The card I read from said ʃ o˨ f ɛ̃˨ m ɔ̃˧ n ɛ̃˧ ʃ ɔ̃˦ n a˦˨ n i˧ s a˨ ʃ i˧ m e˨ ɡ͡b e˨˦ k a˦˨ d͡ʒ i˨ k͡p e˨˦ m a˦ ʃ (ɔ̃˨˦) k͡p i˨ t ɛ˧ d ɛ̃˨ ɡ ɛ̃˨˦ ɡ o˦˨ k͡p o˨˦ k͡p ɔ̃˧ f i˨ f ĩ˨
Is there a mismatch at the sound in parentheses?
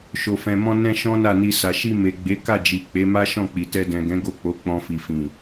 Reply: yes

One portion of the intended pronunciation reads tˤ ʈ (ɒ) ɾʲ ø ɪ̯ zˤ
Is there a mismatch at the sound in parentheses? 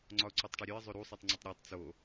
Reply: yes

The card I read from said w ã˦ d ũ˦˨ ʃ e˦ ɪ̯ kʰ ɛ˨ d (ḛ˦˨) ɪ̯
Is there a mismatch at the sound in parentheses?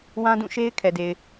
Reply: yes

